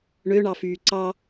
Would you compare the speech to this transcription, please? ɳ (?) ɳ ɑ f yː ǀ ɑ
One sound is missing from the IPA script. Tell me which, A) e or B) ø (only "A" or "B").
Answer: B